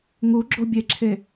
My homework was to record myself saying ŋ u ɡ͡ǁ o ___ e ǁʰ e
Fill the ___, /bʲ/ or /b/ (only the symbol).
bʲ